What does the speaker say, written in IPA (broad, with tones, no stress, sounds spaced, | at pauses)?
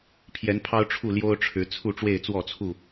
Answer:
pʰ j ɛ˨˦ n pʰ ɑ˦ ʊ̯ ʈ͡ʂʰ u˥˨ l j o˦ ʊ̯ ʈ͡ʂʰ ɻ̩˨˦ t͡sʰ u˥˨ ʈ͡ʂ w e˥˨ ɪ̯ t͡s w ɔ˥˨ t͡sʰ u˥˨